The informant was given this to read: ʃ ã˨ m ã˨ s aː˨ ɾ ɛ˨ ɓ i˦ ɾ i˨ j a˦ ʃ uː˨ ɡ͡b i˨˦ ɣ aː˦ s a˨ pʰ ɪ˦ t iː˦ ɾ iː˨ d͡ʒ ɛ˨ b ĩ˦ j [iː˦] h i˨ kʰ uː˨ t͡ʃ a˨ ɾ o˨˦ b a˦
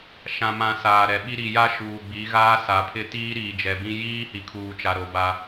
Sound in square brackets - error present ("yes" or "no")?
no